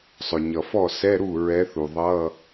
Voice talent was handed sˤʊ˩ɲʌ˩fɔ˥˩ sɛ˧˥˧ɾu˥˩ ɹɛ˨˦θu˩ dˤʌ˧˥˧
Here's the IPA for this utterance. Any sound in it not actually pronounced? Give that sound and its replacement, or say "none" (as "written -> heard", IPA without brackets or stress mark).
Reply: dˤ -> ðˤ